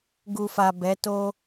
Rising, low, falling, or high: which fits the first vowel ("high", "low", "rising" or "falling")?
low